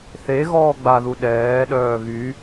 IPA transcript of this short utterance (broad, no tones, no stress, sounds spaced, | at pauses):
θ e ɣ ɔː ɡ͡b a ð u ɗ ɛː ɗ œː ɣ y